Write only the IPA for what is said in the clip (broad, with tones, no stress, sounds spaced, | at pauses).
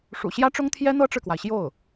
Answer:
ʂ ṵ˨˩ ɕ j ä˥ ʈ͡ʂ ʊ˥ ŋ t̪ʰ j ɛ˥ n̪ ɤ˥ ʈ͡ʂ ɻ̩˨ k w a˩ ɪ̯ ɕ j o˥˩ ʊ̯